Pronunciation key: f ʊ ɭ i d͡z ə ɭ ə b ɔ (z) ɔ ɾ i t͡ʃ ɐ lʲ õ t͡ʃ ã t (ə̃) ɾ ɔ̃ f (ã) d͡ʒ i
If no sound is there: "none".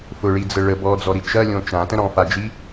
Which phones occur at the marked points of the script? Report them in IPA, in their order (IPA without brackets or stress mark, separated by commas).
d͡z, ə̃, a